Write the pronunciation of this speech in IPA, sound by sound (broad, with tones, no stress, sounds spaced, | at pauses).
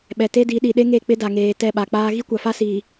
ɓ ɛ˨ t e˦ d i˨˦ ɗ i˨ ɗ e˦ ŋ e˦˨ k͡p ɪ˦ d a˨ ŋ eː˨ t ɛ˦˨ ɓ a˨ k͡p aː˦ ɣ i˦ kʷ a˨ f a˦ s iː˨